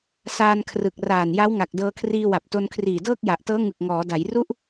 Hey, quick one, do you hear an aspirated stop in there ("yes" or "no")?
yes